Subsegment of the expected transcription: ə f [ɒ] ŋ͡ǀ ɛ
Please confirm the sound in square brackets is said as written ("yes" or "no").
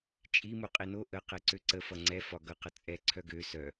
no